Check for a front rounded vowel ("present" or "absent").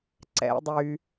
present